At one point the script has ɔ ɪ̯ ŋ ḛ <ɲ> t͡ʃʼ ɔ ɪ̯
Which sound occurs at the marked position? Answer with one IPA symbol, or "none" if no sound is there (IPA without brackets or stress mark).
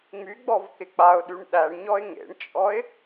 ɳ